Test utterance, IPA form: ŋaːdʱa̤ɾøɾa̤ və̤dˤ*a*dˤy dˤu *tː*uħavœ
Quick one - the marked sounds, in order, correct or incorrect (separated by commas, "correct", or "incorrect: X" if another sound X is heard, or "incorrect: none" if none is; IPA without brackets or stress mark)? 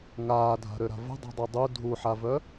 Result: incorrect: a̤, incorrect: dʱ